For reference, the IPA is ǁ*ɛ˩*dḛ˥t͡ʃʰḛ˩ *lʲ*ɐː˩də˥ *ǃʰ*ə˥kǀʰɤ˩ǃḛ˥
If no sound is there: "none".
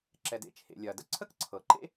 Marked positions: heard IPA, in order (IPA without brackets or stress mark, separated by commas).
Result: ɛ˩, lʲ, ǀʰ